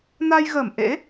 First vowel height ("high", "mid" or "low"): low